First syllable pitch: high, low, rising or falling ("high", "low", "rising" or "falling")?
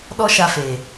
high